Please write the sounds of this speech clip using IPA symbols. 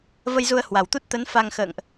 v ə˧ j z u˧ ə̯ h w a˨˩ w t̪ u˦˥ t̚ t̪ ə˨˦ n f a˧ ŋ x ə̰ː˧˨ ŋ ʔ

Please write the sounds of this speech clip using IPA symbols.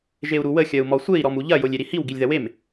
ʒ e u̯ ɾ u w ə xʲ ɐ u̯ m ɔ sʷ e i̯ ɾ ɔ m u ʎ ɐ j o lʲ e ɾ i h i w ɡ i lʲ ð ɐ w e m

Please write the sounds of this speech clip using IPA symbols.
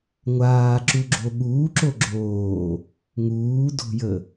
ŋʷ aː ǁ u ɡ͡ǁ o ɠ uː ǁ o ɡ͡ǁ oː | ŋ uː d o̤ j ə

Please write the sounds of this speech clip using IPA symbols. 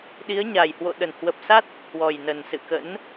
ɗ i˨˦ ə̯ ɲ a˨˩ j h w o̰˧˨ ɗ ə˧˩ n h w ə˨˩ p̚ s a˦˥ t̚ | h w ɔ˨˩ j n ə˨˩ n s ɨ̰˧˨ k ə̰˧˥ n

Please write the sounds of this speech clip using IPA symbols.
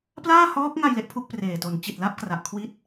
p l aː˥˩ h ɔː˦˥ k̚ ŋ a˧ j l e˦˥ ʔ pʰ u˥˩ k̚ p r eː˨˩ t o˨˩ n t͡ɕ i˨˩ t̚ l a˥˩ p̚ k r a˨˩ ʔ kʰ w i˦˥ t̚

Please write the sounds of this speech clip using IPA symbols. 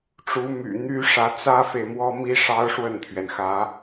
ʈ͡ʂ u˧˥ m y̰˨˩ n̪ y˥ ʂ ä˧˥ t͡s ä˥ f e˨ ɪ̯ m w ɔ˥ m i˥ ʂ ɑ˥ ʊ̯ ʂ w ə˥˩ n t̪ʰ ɥ ɛ˩ n x ä˧˥

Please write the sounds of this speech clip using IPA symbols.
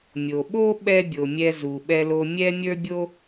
mʲ o˩ ɓ o˥ ɓ ɛ˥ bʲ o˩ mʲ ɛ˧ z u˩ ɓ ɛ˧ l o˧ mʲ ɛ˥ mʲ ə˞˥ bʲ o˥

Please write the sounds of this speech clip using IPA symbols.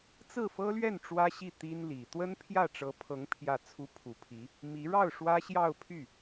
t͡s ɹ̩˥˩ f ɤ˥ l ɥ ɛ˥˩ n ʈ͡ʂ w ä˥ ɕ i˥˩ t̪ i˥ n l i˨˩ t̪ w ə˥ n pʰ j ä˥˩ ʈ͡ʂ ɤ˧˥ pʰ ɤ˧˥ ŋ pʰ j ä˥˩ t͡sʰ u˥ pʰ u˧˥ pʰ i˧˥ | m i˧˥ ɻ ɑ˥˩ ʊ̯ ʂ w ä˥ ɕ j ɑ˥˧ ʊ̯ pʰ y˥˩

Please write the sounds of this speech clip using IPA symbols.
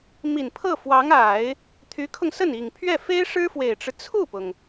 m i˨˩ n pʰ ɤ˥˩ f w ɑ˧˥ ŋ a˨˩˦ ɪ̯ | t̪ʰ y˧˥ kʰ ʊ˧ ŋ s ə˥˩ n i˨˩ ŋ pʰ ɥ ɛ˥˩ f e˥ ɪ̯ ʂ ɻ̩˥ f w e˨˩ ɪ̯ ʈ͡ʂ ɻ̩˦ t͡sʰ u˥˩ p ʊ˩ ŋ

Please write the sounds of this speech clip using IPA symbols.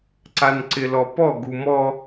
ǀ a n ǀ ɪ l ɔ p ɔ ɡ u m ɔ

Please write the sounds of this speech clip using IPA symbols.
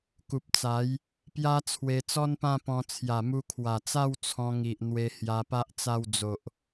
k u˨ p̚ t͡s a˨˦ j | p j a˦ t͡sʰ w e˧ t͡s ɔ˦ n p ã˥˧ p ɔ̃˧ t͡sʰ j a˨˩ m u˧ kʰ w a˨˩ t͡s a˥˧ w t͡sʰ ɔ̃˧ ŋ i˨ ʔ n̪ w e˧ h j a˧ p a˦ ʔ t͡s a˥˧ w d͡z o˨ ʔ

